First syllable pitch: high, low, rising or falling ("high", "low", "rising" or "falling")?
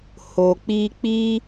low